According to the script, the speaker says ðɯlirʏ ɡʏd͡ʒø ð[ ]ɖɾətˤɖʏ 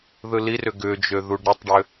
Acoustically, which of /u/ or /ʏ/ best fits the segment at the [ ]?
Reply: u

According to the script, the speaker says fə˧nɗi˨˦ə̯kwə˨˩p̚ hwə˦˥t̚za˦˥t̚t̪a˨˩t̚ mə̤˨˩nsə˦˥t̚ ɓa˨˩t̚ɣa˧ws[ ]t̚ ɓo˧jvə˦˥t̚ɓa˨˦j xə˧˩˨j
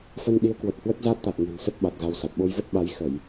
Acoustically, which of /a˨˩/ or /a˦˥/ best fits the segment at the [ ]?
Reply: a˨˩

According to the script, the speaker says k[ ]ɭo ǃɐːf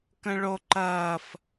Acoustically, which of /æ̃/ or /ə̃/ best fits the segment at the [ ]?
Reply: ə̃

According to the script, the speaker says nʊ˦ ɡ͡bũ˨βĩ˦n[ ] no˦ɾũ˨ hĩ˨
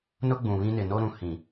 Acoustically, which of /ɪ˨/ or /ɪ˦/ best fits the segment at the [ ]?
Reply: ɪ˨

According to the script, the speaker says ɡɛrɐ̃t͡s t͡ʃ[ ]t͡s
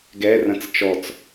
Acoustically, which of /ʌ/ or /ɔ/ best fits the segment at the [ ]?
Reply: ɔ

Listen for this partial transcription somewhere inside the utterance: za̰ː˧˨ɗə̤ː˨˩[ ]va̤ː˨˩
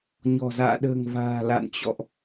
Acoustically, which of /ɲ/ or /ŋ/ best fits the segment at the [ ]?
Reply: ŋ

